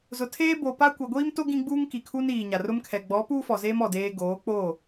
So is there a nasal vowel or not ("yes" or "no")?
yes